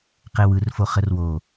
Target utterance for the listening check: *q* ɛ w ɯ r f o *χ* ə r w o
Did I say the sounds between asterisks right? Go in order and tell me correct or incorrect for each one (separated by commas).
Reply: correct, correct